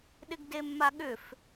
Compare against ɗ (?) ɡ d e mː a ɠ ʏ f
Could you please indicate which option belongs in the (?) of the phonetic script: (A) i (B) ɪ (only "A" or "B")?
B